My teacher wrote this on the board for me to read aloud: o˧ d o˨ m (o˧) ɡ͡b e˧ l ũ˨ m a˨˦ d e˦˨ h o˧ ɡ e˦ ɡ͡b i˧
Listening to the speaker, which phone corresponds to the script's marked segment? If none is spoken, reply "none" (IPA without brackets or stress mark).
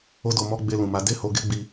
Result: ɔ˧